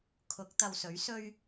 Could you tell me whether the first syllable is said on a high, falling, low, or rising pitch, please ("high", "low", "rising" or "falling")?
rising